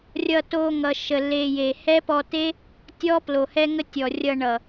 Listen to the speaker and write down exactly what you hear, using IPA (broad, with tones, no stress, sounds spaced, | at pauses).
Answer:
rʲ ʌ˧ t o˧ ŋ ʌ˨ ʃ ə˨ l e˨ j e˨ h ɛ˦ p ɔ˧ t e˦ | tʲ ɔ˦ p l o˨ h ɛ˦ ŋ ə˦ tʲ ɔ˨ rʲ ʌ˧ ɳ ʌ˨